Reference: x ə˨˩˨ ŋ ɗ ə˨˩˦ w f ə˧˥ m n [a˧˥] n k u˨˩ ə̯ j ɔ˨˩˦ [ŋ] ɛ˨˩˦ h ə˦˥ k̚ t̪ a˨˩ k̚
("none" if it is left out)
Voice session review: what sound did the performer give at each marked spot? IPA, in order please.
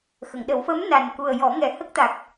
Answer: a˨˩, ŋ

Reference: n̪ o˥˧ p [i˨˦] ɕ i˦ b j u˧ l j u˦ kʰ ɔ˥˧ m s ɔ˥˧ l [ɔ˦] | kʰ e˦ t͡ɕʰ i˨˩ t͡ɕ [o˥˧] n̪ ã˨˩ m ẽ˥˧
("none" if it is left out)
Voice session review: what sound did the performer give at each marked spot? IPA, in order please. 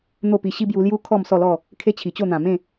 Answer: i˧, ɔ˥˧, o˥˧

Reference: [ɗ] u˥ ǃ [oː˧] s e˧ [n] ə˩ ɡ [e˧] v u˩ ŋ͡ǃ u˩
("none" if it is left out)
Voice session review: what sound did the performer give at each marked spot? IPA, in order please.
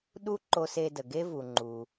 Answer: ɗ, o˧, d, e˥

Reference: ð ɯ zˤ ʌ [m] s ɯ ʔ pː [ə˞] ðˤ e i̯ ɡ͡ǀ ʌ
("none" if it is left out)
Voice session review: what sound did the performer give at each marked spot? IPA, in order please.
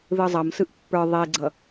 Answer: m, ə˞

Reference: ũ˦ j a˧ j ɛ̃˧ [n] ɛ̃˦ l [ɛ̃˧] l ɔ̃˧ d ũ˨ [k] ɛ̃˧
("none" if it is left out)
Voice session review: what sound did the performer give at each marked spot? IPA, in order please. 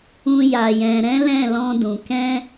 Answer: ɾ, ɛ̃˦˨, k

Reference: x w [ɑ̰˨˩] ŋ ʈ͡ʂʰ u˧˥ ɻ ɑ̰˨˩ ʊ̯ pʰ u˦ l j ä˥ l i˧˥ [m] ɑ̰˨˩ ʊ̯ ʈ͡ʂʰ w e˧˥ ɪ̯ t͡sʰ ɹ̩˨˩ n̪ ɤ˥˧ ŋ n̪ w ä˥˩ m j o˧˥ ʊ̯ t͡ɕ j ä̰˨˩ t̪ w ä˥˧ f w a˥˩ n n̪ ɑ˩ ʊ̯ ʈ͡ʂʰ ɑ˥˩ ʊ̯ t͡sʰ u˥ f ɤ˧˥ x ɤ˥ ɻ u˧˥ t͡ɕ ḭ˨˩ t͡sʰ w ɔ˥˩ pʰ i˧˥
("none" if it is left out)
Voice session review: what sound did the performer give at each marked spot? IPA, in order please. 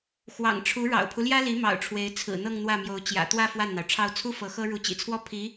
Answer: ɑ̰˨˩, m

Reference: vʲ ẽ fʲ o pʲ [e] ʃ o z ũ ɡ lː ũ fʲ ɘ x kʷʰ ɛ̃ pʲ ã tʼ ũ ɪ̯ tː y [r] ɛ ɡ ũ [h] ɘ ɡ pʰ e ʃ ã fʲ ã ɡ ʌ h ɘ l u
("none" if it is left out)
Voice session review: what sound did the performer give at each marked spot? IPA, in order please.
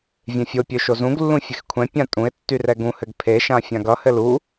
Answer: ø, r, h

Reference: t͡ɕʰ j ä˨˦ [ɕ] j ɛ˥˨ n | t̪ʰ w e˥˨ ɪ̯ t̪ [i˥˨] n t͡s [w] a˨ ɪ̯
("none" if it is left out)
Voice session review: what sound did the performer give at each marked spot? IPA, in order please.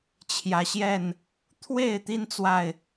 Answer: ɕ, i˦, w

